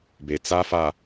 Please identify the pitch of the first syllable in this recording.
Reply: low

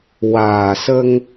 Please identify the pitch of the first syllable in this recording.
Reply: low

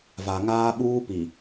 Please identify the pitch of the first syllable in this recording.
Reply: low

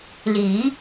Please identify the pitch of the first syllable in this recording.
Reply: rising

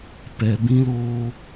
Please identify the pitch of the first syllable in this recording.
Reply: low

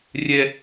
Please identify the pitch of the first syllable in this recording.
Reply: high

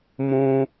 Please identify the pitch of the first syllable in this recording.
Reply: high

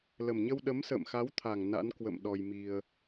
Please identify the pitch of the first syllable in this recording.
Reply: low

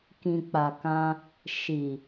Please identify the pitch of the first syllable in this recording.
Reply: low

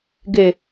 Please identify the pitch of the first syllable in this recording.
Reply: low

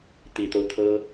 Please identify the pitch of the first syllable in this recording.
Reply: low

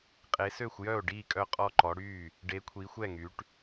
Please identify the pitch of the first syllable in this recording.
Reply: rising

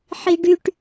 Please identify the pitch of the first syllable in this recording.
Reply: high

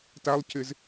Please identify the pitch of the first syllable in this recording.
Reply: high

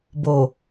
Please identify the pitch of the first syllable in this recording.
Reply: low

